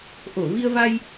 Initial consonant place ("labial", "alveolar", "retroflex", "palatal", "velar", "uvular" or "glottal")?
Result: glottal